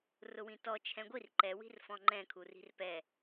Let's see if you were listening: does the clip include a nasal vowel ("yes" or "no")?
yes